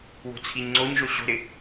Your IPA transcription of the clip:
wo̤t͡sʰiɲŋ͡ǀoɲʒo ɕo̤ɾɪ

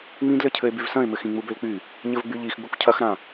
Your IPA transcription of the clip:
ŋ͡mĩdlɘcʰɘe̯ byvsɐ̃e̯mɘx ĩŋ͡mubølk͡py | ɲɘvɡ͡byʎix ɡ͡bukʷcʰɐxɾã

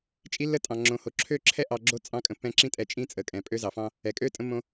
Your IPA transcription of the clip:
t͡ʃʼi˦lːə˦tʼɑ̃˨ ŋ͡ǁõ˨ho˨ǁʰø˦˨ǁʰɛ˦ ʔɑ˧ ɡ͡ǁo˦ t͡sʼɑ̃˦kʼə̃˧ pːɛ̃˧ǁĩ˦tʼɛ˧ t͡ʃʼĩ˦t͡sʼə˨kʼɛ̃˨ pʼø˧zɑ˨fɑ̃˧ | ɛ˨kʼø˦ tʼə̃˦mːõ˦

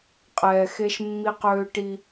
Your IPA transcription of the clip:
qʼɛː˨xe˦ʃmːi˦q øː˦ʈi˦

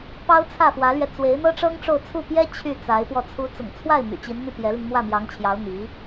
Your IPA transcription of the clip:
pɑ˥ʊ̯t͡sʰä˥˩fwä˧˥lɥɛ˧ t͡swe˧˥ɪ̯n̪ɤ˥ ʈ͡ʂɤ˥ŋʈ͡ʂo˥˧ʊ̯t͡sʰu˥˩ pjɛ˥ t͡ɕʰy˥˩ t͡sa˧˥ɪ̯pwɔ˧ t͡sʰu˧˥t͡sʊ̰˨˩ŋ t͡sʰwa˥˩ɪ̯ my̰˨˩t͡ɕi˧˥nn̪y˥˩ pjɛ˧˥li˧ŋ mwä˥˩mjɑ˧˥ŋt͡ɕʰjɑ˧˥ʊ̯ n̪i˧˥

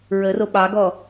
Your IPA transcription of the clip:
ɹəro ɓɑɡɔ

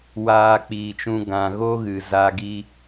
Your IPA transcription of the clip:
waː˧k͡piː˨t͡ʃũ˧ ɡã˨ɣo˦ɣɨ˨ za˧ ɡi˧

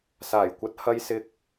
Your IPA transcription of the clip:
saː˨˩jkʷɐ˨˥t̚ hɐ˧jsɪ˧k̚

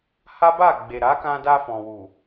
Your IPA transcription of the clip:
ha˦ba˦˨ ɡ͡be˨ɾa˨˦kã˧ da˧fɔ̃˨ wu˨

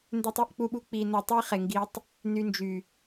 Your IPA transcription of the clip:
ndø˦tˤi˦ʔk͡pu˦ɓu˦ k͡pi˧no˧ tˤi˦χe˨ŋɡi˧tˤ | ny˧nd͡ʒy˨

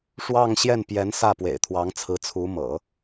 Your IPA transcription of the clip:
ʂwɑ˥˧ŋɕjɛ˥˩npjɛ˧˥nsä˥˩ pwḛ˨˩ɪ̯t̪ʰwɑ˧˥ŋt͡sʰɹ̩˧˥ t͡sʰu˧˥mɤ̰˨˩˦

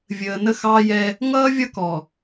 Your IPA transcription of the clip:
vʲəː˨nə˦ xɑː˦jɛ˦ | ŋʌː˦vʲʌ˦kɔ˨

